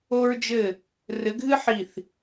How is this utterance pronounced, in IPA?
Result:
o˥ɹd͡ʒɘ˥˨ | rɘ˨˦ ɡʱɨ˥ħi˧˩θ

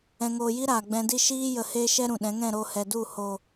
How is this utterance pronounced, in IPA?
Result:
ɛ̃˧ŋoː˧ji˦ɾaː˨ ɡ͡bɛ̃˧di˦ ʃiː˦ jə˧heː˦ʃɛ˦ ɾũ˨ɗɛ̃˨˦ŋɛ̃˦˨ ɾo˧hɛ˨du˦˨ ho˨

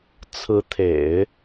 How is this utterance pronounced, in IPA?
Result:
t͡sʰɹ̩˧˥t̪ʰḛ˨˩˦ɪ̯

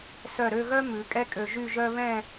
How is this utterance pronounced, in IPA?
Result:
sœ˧˩ɾø˥˧ɣœ˥ mʉ˩˧kʼɛ˥kʼø˧ ʒy˥˧ʒœ˥ βɛ̃˥˧

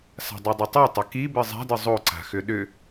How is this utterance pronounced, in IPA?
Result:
sa̤dˤidˤitˤo tˤʏki bɨzˤa̤dɨ zˤoǀa̤ xʏɗʏ

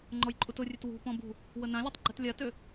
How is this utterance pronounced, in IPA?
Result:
ŋ͡ǃɔjǃʼutʊrʲøt wṳpɔ̃ bṳ | wənãlʲøtˤ ɡ͡ǃɛtlʲatø

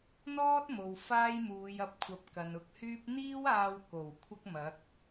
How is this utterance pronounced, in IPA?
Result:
n̪ɔː˥t̚ mo˨w faː˥jmuː˨˧jɐ˧p̚kʷʰɐ˨˥p̚ kɐ˨nʊ˧k̚hyː˥p̚ n̪iː˥waː˧w ko˨˩w kʷʰɐ˥k̚mɐ˨˥k̚

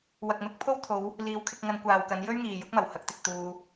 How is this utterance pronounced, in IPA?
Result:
wɐ˨k̚mɪ˨˥k̚ pʰo˥wt̪ʰo˨˧w | liː˨˥wkʰɪ˧k̚ŋɐ˧n kʷaː˨wkɐ˨˧n jɵ˥ɥŋiː˨ jʊ˨˥k̚mɐ˨˩w hɐ˧k̚t̪ɪ˨k̚ t̪uː˧

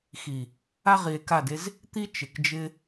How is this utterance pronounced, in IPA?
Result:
xi˨ | a˦ ʁi˨e̯ka˦˨de˦z | t̪i˦ t͡ʃɪ˨kd͡ʒɪ˦

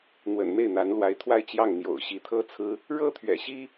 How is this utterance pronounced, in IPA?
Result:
n̪wə̰˨˩nme˥˩ɪ̯n̪a˧˥nlwa˧˥ɪ̯ t̪ʰwa˥˧ɪ̯t͡ɕjɑ˥˩ŋ n̪jo̰˨˩ʊ̯ ɕi˧˥t̪ʰɤ˥t͡sʰɹ̩˥ | ɻɤ˥t̪ʰɥɛ̰˨˩ɕi˥

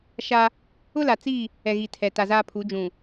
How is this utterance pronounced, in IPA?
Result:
ʃa˦ | ʊ˦la˨t͡si˦˨ | ɛ˨ɣi˨ tʰɛ˨ ta˨zaː˦pʰu˨˦d͡ʒũ˨

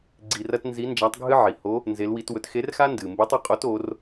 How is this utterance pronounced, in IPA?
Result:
ɡ͡ǀi˧rɐ˥t nzi˧˥ nd͡ʒa˧˥tˤɡʱɨ˥ ʕi˩ho˧˥ | nze˧˥lwi˧˥twɵ˧˥t xe˧˥rxa˥ ndɨ˩mbe˧˥tˤ ɨ˧qʼo˧˥to˩˧r

